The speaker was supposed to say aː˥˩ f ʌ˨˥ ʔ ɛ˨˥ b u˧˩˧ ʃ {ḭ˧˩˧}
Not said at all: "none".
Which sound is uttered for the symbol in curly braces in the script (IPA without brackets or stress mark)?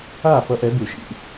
ḭ˧˩˧